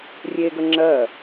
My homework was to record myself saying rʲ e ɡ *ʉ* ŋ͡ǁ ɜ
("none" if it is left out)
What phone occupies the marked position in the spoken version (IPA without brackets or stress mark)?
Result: ə